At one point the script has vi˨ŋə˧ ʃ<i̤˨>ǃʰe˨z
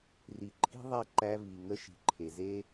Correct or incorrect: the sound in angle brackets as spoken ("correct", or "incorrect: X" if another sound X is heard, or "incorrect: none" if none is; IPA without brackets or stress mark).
correct